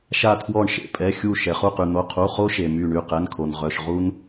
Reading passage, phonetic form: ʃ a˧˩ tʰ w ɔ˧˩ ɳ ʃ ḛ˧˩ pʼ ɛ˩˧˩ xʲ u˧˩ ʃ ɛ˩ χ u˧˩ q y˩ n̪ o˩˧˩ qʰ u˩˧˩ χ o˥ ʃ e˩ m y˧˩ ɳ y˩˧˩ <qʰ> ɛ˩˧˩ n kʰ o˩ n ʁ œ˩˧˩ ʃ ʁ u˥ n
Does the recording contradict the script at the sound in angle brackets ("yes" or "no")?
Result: yes